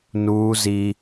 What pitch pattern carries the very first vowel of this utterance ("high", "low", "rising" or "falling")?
high